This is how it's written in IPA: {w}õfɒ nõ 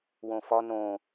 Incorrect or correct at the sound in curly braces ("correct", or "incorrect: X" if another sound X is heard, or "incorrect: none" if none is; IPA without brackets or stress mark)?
correct